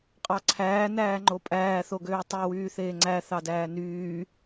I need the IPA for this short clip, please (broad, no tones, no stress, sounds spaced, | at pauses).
qʼ ɑ ǀʰ æː n æː ŋ͡ǃ o pʼ æː θ o ɡ øː tˤ u w yː θ eː ŋ͡ǀ æ θ ɑ d æː n yː